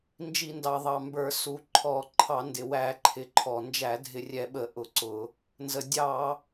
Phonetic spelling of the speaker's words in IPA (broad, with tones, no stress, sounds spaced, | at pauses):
n d͡ʒ i˧˩˧ n d ɑ˨˩ ðˤ ɑ˨˩ m b ə˞˧˩˧ s u˨˩ ǃʰ ɔ˧˩˧ ǃʰ ɑ˧˩˧ n d ɪ˨˩ w æ˧˩˧ ǃʰ ɪ˨˩ ǃʰ ɔ˨˩ n d͡ʒ æ˧˩˧ dʱ ɪ˧˩˧ rʲ ɛ˧˩˧ ɓ ə˧˩˧ ʔ ʊ˧˩˧ ǀ ʊ˧˩˧ | n z ə˨˩ dʲ ɑ˧˩˧